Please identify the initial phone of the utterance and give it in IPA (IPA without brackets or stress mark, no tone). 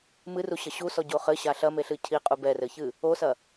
m